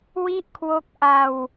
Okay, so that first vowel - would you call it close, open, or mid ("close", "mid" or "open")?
close